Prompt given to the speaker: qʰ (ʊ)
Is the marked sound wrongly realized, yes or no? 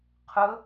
no